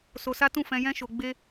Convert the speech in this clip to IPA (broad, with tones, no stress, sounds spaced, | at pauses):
s o˧ s a˦ t ũ˦˨ f ɛ̃˧ j ɛ̃˦ ʃ o˧ ɡ͡b e˦